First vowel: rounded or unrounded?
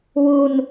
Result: rounded